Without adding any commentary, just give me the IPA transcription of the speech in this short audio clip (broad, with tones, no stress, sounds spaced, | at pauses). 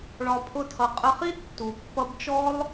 ɭ ɒ˧ pʰ ʊ˦ tʰ ʌ˧ qʼ ə˧ χ i˦ d tː u˨ pː ʌ˧ b t͡ʃ ɔ˦ lˠ